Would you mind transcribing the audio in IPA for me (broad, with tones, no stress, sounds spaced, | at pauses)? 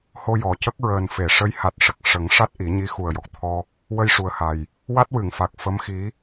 h o˧ j ɔ˨˩ c ə˦˥ k̚ ɹ əː˨˩ n f e˨˩˨ ʂ ə˧˥ j h a˨˩ t̚ ʂ ə˨˩ k̚ ʂ ə˨˩˦ ŋ ʂ a˦˥ t̚ ʔ i˨˩˦ ɲ i˧˥ x u˨˩ ə̯ j ɔ˨˩ k̚ t̪ʰ ɔ˧ | w ə˧ j ʂ u˨˩ ə̯ h a˨˩ j | w a˦˥ t̚ w ɨ˨˩˨ ŋ f a˨˩ k̚ f ə˧˥ m x i˧˥